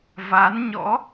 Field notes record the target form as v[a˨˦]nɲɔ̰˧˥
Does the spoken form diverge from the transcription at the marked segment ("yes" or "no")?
no